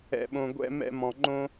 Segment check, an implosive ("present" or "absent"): present